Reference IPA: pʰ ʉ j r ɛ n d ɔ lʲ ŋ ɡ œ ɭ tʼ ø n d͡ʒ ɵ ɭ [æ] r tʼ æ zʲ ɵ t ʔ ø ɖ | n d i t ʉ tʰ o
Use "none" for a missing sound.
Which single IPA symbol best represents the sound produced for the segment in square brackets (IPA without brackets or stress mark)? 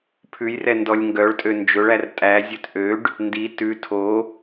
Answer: æ